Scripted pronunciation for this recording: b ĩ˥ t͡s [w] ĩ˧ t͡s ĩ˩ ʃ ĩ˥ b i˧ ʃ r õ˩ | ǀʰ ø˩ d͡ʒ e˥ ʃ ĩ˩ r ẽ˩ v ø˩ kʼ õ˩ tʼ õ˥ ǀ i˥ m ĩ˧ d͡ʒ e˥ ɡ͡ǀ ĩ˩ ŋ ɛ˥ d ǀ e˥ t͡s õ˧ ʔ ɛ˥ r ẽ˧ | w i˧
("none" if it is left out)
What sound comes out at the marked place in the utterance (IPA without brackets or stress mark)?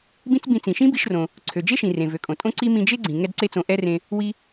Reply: b